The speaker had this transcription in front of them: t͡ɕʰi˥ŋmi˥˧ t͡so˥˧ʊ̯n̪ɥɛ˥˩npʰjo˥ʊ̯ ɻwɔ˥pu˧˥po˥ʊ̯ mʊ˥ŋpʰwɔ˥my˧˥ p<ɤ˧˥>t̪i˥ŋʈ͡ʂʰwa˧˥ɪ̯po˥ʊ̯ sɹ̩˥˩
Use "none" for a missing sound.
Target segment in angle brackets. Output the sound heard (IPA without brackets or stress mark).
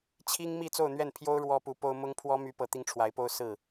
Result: ɤ˧˥